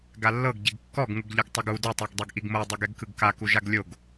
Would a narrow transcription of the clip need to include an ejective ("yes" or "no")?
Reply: no